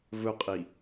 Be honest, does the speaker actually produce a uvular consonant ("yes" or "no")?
yes